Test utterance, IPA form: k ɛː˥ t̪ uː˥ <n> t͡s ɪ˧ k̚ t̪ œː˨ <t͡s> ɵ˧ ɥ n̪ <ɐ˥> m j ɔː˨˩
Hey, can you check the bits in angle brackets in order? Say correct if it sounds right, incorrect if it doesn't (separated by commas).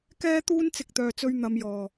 correct, correct, incorrect